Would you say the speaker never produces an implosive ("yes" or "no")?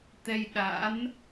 no